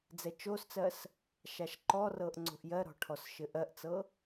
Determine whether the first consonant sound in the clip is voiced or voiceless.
voiced